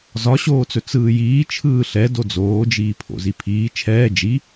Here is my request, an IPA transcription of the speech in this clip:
z ɒ ɕ oː t͡s ɵ t͡s ɯː j iː t͡ʃʰ ɯː ɬ ɛ d o d͡z oː d͡ʒ iː pʰ o̰ z i pʰ iː t͡ʃʰ ɛː d͡ʒ i

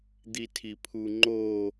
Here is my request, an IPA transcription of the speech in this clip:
d̪ i tʰ i pʰ u ŋ͡ǃ o

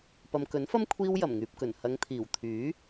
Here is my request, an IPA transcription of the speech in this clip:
p ɐ˨ m k ɵ˨˥ n f ɐ˥ m kʷʰ iː˥ w j ɐ˨˩ m ŋ yː˨ p̚ k ɵ˨˩ n h ɐ˨˧ ŋ t̪ʰ iː˨˩ w t̪ʰ yː˨˥

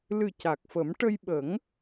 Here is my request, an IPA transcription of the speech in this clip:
l ɨ˨˩ c a˨˩ k̚ f ə˨˩˦ m ʈ ə˧ j ɓ ə˨˩˦ ŋ

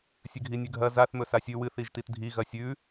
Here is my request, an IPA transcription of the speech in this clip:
sʲ ɨ ɡʱ i nʲ ʉ ɡʱ ɐ z a θ m ɵ s a sʲ ʉ w ɨ θ i ʒ t i t dʱ i ɣ ɐ sʲ ʉ

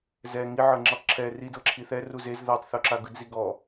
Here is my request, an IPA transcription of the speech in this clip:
z ɛ ŋ i ʕ ɤ ŋ͡ǁ i tˤ ǁʰ ɛ r i d ɤ ǁʰ i θ ɛ r u z e z ð ɤ tˤ θ o ǁ a ɡ ɯ d z i ɡ ɔ

